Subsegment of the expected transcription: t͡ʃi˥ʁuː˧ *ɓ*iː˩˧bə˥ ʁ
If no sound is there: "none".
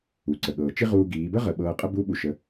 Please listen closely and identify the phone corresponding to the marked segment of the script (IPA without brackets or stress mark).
ɡ